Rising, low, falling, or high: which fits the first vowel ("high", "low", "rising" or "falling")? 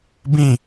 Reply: falling